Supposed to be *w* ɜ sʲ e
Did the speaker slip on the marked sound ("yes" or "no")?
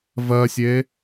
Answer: yes